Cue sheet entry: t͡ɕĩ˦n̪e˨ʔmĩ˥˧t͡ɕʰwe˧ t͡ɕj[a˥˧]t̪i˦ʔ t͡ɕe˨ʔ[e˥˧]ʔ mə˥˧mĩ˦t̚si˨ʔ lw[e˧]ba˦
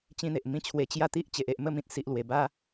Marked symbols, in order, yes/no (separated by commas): yes, no, no